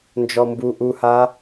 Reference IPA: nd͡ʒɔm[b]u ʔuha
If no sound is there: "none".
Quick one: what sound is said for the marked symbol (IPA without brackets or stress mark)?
b